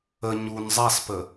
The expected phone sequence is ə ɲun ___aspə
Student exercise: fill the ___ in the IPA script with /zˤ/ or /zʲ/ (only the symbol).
zˤ